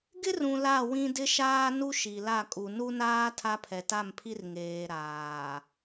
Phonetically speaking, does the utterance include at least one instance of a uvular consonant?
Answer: no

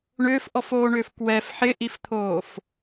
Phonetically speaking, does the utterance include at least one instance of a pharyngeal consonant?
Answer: yes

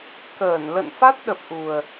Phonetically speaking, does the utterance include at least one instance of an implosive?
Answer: yes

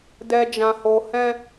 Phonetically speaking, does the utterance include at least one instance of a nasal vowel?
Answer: yes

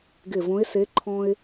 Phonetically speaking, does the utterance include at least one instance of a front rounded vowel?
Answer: no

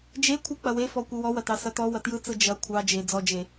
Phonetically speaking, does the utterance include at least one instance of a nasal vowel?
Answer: no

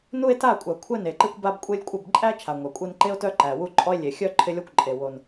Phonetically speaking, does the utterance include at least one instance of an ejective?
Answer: yes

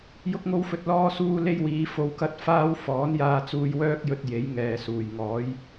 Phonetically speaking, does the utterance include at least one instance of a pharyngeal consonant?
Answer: no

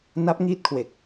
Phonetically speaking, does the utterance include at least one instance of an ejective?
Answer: no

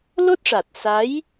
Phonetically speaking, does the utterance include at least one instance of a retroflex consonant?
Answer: yes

